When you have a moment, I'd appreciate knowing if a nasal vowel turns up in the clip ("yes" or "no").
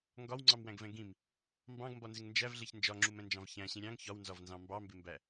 yes